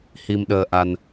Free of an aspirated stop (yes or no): yes